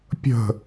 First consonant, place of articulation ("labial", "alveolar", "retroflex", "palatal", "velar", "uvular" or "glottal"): labial